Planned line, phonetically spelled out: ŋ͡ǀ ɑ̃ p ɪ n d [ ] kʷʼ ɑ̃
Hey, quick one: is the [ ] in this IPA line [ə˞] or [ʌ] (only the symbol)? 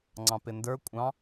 ə˞